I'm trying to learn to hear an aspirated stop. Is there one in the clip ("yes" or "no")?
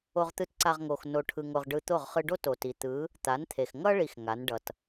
yes